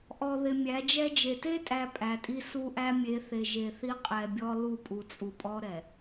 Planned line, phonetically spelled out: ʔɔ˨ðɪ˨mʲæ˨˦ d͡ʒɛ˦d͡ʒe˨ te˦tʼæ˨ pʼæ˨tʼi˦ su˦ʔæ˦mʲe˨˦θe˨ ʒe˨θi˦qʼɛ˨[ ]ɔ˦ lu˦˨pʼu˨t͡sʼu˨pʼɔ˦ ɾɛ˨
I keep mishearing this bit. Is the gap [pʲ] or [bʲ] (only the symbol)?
bʲ